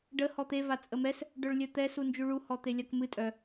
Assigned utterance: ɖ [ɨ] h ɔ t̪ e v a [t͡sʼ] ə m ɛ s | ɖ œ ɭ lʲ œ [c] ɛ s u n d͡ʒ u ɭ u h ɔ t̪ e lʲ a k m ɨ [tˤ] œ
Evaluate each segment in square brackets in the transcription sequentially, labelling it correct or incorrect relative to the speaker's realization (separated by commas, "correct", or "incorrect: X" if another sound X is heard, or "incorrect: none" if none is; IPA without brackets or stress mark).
incorrect: ə, correct, incorrect: t̪, incorrect: tʼ